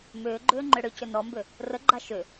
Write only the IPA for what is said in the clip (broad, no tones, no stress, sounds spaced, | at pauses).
m ʏː ɡ͡ǃ ʏː ŋ͡ǃ ʏ ɽ ʏ c ʏ n ɔ m b ʏ | r ə ɡ͡ǃ a ʃ ʏ